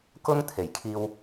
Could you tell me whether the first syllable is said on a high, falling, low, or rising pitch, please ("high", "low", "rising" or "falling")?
high